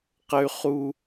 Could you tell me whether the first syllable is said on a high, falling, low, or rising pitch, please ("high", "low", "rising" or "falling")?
high